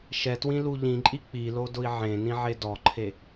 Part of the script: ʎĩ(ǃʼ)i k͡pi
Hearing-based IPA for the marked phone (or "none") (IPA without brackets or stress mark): ǃʼ